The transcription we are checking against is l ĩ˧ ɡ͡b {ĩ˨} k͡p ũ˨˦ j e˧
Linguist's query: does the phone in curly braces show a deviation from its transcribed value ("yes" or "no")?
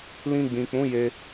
no